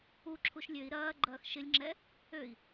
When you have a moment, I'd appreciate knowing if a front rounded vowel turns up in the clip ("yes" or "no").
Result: yes